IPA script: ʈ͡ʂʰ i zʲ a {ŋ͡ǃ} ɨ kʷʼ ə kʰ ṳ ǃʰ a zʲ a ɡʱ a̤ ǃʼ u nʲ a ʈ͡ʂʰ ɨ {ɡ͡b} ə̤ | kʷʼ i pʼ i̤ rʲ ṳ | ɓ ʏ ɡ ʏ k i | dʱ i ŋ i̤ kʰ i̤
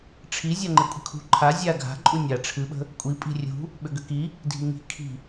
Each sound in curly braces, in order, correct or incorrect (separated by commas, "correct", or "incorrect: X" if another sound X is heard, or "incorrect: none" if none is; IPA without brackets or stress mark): correct, incorrect: ɓ